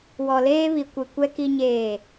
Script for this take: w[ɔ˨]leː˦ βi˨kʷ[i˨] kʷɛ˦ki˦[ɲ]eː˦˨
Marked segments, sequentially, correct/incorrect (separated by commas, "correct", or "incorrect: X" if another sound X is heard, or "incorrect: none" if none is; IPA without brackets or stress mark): correct, correct, correct